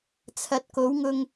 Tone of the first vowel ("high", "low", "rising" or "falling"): rising